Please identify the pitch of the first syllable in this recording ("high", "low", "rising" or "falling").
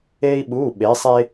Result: high